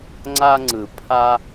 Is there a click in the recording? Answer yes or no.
yes